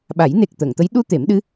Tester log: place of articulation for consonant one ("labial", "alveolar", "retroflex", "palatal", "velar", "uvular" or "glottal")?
labial